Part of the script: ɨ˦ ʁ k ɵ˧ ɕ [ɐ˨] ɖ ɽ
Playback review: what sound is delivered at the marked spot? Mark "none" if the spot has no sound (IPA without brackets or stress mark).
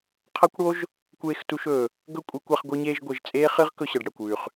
ɐ˨